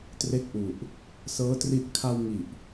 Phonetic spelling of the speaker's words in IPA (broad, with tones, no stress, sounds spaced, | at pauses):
t r e˦˥ k̚ ʔ u˨˩ ʔ | s ɤː˦˥ t r i˦˥ ʔ kʰ a˧ w ŋ i˨˩ ʔ